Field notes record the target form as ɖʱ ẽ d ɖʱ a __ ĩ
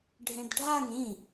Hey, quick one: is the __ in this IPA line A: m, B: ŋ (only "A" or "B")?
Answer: B